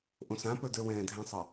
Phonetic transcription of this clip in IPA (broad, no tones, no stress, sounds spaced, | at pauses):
ʔ õ s ã p ə˞ d ə˞ w ɛ̃ː dʱ ɛ̃ sˤ ɑ